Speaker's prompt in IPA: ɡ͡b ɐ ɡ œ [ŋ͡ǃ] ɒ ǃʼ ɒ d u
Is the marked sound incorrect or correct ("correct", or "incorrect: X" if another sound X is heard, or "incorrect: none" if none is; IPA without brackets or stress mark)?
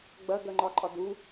correct